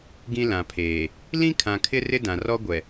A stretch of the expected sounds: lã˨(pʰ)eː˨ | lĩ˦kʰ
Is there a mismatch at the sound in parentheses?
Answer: no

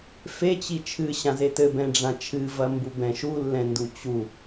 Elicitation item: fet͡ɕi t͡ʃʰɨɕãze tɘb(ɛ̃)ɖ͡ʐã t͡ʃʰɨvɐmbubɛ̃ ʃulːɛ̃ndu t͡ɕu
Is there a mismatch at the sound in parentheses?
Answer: no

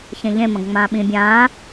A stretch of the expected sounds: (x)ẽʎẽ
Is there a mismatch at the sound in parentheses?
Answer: yes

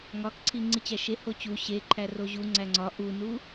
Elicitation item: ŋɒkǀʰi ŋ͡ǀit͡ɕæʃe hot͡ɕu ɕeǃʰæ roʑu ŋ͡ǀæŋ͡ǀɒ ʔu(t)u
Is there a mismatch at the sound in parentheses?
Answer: yes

